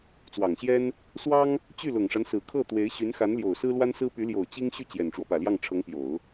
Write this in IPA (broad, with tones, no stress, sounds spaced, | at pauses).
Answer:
t͡s w ɑ˨˩ ŋ ɕ j ɛ˥ n | s w ɑ˥ ŋ | t͡ɕ y˥˩ l ʊ˨˩ ŋ ʂ a˦ n s ɹ̩˨˩ kʰ ɤ˥˩ t̪ w e˧˥ ɪ̯ ɕ y˧˥ n x a˧˥ n l j o˨˩ ʊ̯ s ɹ̩˥ l w a˥ n s ɹ̩˥ p y˧˥ l j o˨˩ ʊ̯ t͡ɕ i˥ ŋ ɕ y˥˩ t͡ɕ j ɛ˨˩ n ʈ͡ʂ w ɔ˦ p ä˨˩ l j ɑ˥˩ ŋ ʈ͡ʂʰ ɤ˧˥ ŋ p j o˨˩˦ ʊ̯